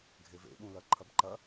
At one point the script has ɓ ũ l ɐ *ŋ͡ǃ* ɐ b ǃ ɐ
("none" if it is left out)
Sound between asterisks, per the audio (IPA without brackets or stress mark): ǃʰ